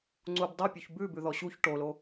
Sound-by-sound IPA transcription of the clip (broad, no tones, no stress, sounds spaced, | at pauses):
ŋ͡ǀ u b dˤ u pʲ u ç b ʉ b ʉ ð ɔ ɕ u ç ʈ o l o